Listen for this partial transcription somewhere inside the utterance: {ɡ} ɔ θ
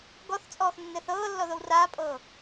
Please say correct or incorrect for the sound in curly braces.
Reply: correct